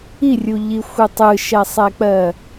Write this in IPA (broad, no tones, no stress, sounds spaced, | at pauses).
i rʲ u ʎ i xʷ ɯ tˤ ɯ ʃ ɛ sˤ ɛ k͡p ɜ